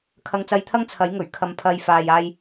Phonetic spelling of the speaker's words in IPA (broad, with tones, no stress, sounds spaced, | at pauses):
kʰ ɐ˧ ŋ t͡s ɐ˧ j t̪ʰ ɐ˥ ŋ t͡sʰ ɐ˨˥ j ŋ ɵ˨˩ ɥ kʰ ɐ˨ m pʰ ɐ˨ j f aː˨ j aː˧ j